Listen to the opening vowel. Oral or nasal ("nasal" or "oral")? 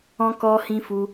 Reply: nasal